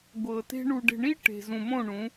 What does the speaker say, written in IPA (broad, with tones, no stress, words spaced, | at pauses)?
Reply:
ɡʷɤ˨te̤˦ ɳu˨ɖe̤˨ɳi˦ ʈe̤˨zũ˨mõ˦˨ ɳũ˨˦